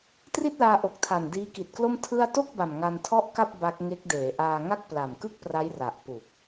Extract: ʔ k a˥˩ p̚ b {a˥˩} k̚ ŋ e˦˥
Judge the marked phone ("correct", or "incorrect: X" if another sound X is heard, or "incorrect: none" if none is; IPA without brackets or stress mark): incorrect: a˦˥